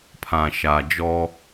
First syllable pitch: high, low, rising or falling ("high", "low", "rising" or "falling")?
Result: low